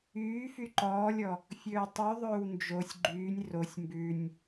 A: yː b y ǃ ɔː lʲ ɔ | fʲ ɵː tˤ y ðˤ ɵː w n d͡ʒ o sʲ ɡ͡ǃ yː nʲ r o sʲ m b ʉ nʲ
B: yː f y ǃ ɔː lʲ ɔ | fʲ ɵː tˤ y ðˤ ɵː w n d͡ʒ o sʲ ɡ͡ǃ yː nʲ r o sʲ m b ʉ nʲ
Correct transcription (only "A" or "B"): B